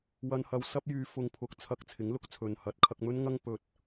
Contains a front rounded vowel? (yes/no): yes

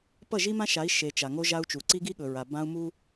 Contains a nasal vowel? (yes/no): yes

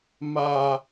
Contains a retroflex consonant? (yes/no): no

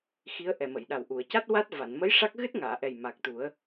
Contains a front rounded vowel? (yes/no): no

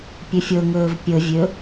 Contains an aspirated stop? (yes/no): no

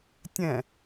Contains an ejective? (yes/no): no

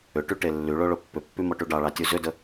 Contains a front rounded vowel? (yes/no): yes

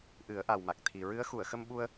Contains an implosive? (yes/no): yes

